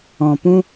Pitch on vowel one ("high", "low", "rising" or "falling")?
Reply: low